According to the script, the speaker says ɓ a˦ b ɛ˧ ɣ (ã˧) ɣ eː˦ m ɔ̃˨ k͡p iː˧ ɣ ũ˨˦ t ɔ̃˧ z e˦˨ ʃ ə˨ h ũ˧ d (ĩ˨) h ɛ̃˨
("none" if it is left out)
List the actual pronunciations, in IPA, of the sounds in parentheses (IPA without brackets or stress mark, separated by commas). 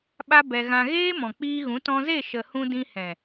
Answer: ã˧, ĩ˧